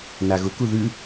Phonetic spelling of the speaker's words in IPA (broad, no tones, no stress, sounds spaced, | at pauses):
n a ɣ ʊ k u ð ʉ